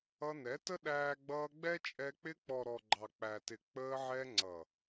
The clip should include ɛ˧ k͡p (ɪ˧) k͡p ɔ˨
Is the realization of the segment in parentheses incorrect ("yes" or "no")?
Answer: no